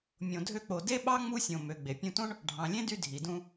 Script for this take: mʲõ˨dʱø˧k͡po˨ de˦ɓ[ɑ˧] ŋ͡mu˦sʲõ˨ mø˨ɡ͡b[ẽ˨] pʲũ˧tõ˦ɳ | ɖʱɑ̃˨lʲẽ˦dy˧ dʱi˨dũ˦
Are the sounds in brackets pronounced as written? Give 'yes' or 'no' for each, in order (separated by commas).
no, no